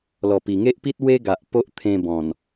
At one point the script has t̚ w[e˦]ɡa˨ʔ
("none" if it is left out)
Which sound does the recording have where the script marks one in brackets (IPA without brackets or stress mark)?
e˦